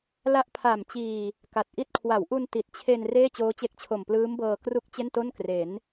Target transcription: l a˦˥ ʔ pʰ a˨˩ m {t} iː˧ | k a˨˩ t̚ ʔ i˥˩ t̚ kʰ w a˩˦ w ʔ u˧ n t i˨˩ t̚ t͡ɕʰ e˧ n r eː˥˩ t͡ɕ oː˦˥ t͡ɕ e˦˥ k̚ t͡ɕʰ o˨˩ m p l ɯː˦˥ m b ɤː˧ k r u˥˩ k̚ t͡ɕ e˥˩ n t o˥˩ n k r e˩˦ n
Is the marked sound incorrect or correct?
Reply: incorrect